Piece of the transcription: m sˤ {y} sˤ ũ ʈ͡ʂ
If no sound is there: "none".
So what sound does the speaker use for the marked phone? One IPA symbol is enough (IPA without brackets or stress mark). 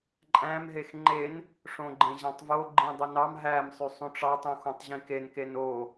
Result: y